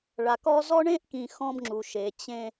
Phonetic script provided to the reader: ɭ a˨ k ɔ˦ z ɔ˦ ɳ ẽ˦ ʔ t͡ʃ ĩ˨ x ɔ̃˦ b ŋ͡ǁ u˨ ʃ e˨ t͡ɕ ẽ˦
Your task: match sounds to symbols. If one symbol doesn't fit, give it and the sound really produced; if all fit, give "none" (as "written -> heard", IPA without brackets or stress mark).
t͡ʃ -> k